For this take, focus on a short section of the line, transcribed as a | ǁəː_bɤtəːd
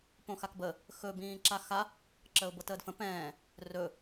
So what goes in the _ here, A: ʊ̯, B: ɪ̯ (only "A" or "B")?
A